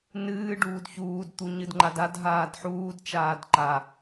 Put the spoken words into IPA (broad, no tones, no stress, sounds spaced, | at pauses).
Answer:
n ɨː ɖ uː d ç uː d t̪ u ɲ ɨ d ŋ͡ǃ a d a d ɦ aː d ħ uː d t͡ʃ aː d ǃ a